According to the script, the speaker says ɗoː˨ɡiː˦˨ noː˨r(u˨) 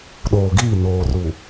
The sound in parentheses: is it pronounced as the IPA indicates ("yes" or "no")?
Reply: yes